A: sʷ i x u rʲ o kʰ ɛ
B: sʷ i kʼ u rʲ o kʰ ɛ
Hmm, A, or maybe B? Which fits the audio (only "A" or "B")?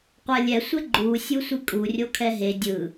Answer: B